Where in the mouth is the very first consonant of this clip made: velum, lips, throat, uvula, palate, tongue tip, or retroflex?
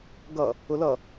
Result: velum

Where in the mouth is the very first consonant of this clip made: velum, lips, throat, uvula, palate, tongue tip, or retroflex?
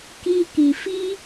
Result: velum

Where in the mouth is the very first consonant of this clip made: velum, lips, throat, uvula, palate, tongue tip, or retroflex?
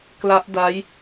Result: velum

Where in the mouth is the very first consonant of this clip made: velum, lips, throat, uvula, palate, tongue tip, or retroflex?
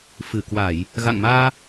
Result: lips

